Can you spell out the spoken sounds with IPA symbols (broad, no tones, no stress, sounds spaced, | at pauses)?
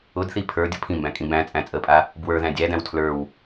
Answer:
ʊ d θ i pʰ ə˞ dʲ ʊ pʰ ĩ m b æ̃ kʼ ĩ b æ̃ t͡sʼ æ̃ t͡sʼ ə pʼ a | b w ə˞ ð æ̃ dʲ æ d æ̃ w tʰ l ə˞ w